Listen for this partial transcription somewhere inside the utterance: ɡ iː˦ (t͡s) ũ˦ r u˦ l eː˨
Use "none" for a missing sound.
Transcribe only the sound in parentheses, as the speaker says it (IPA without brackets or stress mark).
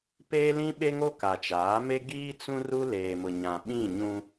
t͡s